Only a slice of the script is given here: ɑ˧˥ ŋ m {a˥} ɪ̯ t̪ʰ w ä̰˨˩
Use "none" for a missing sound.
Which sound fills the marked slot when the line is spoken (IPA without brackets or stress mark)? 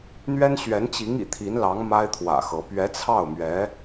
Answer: a˥